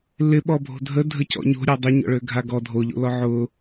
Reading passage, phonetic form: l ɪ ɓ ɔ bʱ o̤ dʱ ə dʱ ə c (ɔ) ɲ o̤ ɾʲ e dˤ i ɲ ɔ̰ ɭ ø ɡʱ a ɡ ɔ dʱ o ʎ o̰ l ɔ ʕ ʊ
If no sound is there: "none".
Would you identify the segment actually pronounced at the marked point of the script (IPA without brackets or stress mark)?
ɔ̰